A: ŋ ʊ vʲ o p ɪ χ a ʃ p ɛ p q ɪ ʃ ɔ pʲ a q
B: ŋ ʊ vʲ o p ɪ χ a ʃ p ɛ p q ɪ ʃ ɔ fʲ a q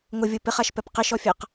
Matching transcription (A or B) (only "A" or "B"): B